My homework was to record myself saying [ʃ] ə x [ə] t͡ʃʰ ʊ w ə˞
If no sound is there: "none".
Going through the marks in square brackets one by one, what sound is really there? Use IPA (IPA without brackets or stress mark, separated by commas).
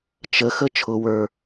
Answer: t͡ʃ, ə